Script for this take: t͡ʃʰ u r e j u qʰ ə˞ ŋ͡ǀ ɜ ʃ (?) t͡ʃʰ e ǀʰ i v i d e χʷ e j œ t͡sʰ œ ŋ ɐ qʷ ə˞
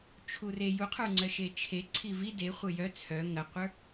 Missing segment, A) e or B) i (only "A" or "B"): A